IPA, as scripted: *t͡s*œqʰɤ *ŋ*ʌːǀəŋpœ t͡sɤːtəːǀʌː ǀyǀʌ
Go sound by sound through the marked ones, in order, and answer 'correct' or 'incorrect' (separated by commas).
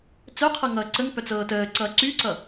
correct, correct